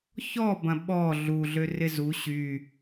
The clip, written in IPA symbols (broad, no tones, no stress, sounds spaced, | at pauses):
ç ɔ b ɐ̃ ɓ ɔ ɮ u ɮ ø r ɪ z u ɕ y